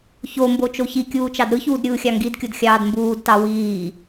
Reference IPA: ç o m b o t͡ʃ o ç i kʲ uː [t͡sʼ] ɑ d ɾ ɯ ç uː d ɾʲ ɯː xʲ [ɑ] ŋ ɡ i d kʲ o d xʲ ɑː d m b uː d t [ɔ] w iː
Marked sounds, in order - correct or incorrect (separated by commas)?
incorrect, correct, incorrect